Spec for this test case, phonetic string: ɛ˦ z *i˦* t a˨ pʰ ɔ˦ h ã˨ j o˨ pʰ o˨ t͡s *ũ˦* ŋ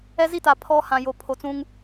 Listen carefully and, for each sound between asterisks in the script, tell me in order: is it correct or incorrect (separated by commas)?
correct, correct